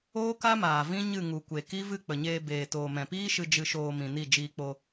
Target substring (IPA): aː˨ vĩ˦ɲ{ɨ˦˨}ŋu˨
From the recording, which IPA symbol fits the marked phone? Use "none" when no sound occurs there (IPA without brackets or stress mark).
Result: ɨ˦˨